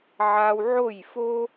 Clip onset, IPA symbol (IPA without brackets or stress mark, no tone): ʕ